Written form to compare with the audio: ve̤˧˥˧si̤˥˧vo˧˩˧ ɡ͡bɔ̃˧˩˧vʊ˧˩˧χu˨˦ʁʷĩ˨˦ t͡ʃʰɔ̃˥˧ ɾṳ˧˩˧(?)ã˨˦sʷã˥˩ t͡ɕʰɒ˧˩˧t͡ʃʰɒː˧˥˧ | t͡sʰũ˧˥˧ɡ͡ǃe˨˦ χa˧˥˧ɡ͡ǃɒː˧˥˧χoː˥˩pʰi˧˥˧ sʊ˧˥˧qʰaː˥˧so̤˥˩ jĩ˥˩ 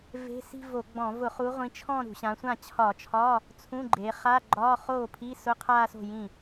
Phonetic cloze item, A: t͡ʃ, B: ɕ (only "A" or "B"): B